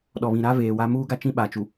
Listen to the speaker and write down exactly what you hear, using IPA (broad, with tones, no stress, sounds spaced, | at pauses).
ɗ ɔ˨ β ĩ˨ ɾ a˦ v eː˨ w a˦ m uː˦ ɡ a˦ t͡ʃ ĩ˦ ɓ a˨ t͡ʃ u˨